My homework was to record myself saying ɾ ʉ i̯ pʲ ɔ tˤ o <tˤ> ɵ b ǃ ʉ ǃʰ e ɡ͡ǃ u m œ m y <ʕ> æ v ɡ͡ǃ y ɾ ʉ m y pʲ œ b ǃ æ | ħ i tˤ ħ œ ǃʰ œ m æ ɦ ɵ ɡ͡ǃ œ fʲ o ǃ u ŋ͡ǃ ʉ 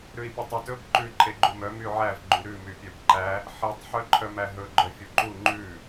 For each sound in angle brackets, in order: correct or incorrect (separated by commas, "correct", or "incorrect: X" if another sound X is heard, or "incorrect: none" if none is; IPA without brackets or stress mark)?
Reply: incorrect: t, correct